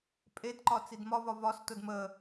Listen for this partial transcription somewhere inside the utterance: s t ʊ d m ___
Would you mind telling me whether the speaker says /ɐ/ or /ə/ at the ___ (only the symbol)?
ə